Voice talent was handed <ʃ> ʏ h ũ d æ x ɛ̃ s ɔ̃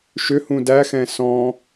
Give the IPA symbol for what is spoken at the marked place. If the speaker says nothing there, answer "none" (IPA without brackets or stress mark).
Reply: ʃ